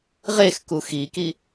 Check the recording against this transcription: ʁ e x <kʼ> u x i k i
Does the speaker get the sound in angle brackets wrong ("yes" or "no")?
yes